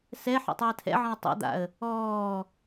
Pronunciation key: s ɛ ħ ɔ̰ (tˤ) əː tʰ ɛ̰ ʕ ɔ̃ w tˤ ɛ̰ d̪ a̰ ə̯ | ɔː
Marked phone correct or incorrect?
correct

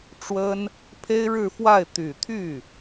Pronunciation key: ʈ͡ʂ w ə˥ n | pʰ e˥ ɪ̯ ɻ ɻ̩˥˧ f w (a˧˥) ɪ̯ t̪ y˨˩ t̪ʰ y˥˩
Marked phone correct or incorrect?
incorrect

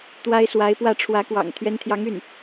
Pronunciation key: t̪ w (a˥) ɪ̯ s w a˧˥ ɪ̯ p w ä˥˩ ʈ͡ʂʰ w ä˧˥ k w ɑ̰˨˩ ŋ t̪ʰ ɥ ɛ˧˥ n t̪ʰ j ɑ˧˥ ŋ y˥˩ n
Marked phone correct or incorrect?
correct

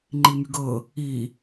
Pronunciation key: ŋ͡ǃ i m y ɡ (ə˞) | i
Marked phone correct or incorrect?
incorrect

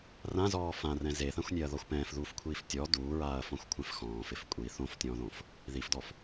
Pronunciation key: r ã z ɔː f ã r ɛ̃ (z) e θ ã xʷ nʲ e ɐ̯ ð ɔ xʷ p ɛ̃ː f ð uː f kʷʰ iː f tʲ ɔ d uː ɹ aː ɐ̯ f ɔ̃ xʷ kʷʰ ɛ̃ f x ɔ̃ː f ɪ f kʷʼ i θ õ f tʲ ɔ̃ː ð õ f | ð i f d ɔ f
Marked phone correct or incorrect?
correct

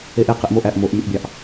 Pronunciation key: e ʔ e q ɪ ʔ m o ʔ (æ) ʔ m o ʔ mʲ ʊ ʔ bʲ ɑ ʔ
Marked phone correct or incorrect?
correct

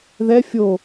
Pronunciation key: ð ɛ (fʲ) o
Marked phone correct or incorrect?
correct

